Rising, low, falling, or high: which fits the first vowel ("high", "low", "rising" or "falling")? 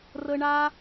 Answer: high